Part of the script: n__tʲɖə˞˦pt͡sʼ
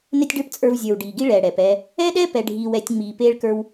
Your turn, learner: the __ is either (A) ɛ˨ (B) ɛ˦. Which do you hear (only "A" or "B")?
B